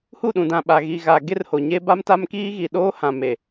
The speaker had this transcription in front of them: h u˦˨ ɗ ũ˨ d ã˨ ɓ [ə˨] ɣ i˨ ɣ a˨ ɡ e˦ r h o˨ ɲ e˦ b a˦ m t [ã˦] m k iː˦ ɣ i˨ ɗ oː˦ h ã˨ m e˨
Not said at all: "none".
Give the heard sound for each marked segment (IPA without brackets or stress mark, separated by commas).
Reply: a˨, a˦